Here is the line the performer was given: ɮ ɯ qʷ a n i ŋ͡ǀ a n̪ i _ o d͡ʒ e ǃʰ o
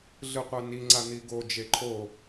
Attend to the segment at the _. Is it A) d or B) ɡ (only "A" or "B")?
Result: B